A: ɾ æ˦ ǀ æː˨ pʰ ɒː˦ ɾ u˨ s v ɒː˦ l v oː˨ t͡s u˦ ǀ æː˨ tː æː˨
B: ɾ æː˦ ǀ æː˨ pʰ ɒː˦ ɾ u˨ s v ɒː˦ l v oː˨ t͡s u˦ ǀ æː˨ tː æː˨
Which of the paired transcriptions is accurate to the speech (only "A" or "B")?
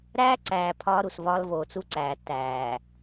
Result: B